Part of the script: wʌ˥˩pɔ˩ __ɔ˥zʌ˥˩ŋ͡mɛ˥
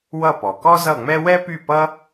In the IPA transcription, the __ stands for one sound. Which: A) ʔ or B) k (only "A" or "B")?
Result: B